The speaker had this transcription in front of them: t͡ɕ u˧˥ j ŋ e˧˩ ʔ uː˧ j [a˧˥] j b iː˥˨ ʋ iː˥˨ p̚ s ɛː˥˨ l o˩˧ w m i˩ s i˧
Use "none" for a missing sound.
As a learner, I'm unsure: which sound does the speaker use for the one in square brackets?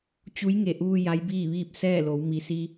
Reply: a˧˥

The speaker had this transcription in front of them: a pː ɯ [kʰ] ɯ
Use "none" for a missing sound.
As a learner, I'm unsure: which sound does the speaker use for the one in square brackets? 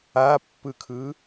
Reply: kʰ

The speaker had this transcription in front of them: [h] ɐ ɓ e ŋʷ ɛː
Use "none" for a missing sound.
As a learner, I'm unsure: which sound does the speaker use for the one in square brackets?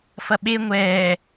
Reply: f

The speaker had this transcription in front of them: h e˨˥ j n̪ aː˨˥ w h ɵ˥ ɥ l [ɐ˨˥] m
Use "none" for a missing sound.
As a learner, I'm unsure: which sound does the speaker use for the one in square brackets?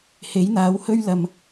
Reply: ɐ˨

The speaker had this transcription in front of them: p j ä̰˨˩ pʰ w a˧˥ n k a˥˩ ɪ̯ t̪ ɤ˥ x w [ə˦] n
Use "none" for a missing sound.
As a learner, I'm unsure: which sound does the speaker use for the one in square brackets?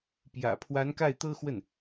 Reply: ə˥˩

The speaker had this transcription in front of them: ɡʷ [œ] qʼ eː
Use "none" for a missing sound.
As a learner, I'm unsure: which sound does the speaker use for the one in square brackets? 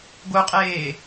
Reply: œ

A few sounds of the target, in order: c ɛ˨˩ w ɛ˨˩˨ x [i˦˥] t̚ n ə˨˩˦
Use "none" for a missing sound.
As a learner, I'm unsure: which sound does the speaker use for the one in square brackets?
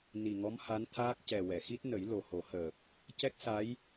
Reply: i˦˥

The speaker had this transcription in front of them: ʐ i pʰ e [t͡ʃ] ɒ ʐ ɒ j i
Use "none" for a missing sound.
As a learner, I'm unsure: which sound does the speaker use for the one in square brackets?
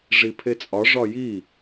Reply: t͡sʼ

